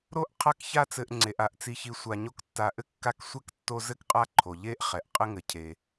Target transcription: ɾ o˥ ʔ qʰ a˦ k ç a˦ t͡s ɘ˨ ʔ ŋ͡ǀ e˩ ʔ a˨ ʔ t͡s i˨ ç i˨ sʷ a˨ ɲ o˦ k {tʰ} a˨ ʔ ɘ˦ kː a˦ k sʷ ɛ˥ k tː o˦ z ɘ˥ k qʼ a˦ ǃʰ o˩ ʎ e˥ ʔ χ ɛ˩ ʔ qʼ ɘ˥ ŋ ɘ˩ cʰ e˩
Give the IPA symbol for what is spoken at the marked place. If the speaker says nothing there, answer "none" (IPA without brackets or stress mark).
tː